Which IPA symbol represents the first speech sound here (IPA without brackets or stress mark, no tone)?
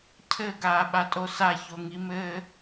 cʰ